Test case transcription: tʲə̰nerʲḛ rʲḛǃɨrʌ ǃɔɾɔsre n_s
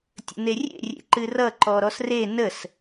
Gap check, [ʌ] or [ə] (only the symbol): ə